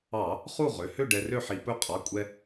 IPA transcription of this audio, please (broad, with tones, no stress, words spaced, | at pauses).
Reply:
ɑ˧˩˧ | χu˥˨ʁø˩˧˩ hø˥˨ ɖɛ˧rø˥˨ħi˧˩˧ pɵ˧˥qʼɑ˩˧˩kʷʼɛ˧